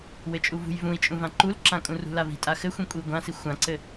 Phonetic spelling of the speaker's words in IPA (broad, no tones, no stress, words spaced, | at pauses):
wɘt͡ʃʼuvṳj vũi̯t͡ʃʼũvã ǃulǁã kʼũrṳlavi̤ tʼaxɘxʷĩ kʷʼiu̯ɡʷãsi xʷãǀɘ